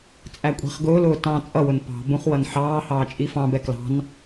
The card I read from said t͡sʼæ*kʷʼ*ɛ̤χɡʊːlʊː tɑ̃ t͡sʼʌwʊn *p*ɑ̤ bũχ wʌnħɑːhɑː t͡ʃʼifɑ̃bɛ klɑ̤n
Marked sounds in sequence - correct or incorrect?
correct, correct

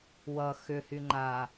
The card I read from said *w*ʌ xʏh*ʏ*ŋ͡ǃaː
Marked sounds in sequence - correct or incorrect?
correct, incorrect

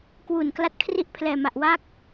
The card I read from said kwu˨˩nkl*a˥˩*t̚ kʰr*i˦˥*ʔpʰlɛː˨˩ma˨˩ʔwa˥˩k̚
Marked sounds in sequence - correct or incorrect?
incorrect, incorrect

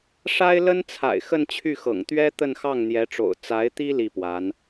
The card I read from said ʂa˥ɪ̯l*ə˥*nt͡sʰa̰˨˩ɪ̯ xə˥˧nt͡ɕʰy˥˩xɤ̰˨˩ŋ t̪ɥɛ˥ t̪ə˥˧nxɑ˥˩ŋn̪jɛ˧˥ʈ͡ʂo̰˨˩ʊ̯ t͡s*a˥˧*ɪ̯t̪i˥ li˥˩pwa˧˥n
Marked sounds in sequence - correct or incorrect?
correct, incorrect

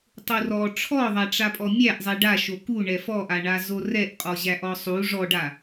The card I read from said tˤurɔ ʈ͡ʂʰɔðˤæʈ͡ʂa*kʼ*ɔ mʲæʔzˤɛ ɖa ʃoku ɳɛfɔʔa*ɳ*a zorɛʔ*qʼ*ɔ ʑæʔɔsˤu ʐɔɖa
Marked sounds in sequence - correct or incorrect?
incorrect, correct, correct

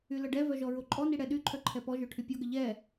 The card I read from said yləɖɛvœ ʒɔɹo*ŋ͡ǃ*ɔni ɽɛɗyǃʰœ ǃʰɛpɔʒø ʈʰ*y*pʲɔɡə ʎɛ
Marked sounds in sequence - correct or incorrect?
incorrect, correct

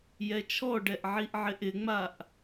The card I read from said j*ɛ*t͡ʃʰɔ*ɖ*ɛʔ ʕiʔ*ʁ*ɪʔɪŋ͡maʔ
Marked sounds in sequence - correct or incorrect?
correct, correct, incorrect

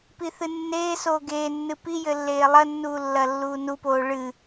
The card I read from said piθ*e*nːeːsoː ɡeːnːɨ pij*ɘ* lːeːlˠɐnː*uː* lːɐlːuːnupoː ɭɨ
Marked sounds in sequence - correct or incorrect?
incorrect, correct, correct

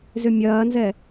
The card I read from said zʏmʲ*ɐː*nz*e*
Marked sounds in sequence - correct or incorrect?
correct, incorrect

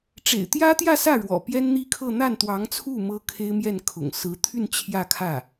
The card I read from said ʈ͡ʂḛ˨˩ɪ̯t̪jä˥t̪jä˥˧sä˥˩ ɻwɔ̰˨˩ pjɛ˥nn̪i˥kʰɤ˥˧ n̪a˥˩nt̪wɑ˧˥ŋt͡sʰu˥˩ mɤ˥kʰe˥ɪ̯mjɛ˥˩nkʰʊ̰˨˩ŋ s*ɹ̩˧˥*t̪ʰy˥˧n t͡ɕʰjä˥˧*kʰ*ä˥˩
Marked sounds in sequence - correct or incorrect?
correct, correct

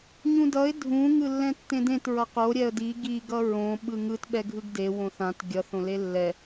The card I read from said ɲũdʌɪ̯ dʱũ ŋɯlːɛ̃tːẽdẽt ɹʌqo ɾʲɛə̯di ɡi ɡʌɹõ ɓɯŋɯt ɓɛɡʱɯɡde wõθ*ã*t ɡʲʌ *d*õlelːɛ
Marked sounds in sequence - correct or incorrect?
correct, incorrect

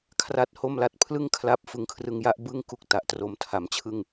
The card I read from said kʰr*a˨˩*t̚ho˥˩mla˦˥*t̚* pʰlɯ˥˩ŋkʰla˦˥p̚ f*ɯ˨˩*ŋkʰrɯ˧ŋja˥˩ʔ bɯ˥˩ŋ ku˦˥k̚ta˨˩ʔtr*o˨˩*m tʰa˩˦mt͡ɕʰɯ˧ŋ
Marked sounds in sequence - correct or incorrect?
incorrect, correct, incorrect, correct

